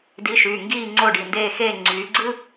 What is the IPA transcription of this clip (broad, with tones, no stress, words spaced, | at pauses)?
di˨˦ʃyː˩˧˩ŋɡiː˦˨ ŋ͡ǀo˦˨ɖi˩˧˩ndeː˦˨xeː˦˨ ŋ͡ǀyː˨˦ ɡ͡ǀɯ˥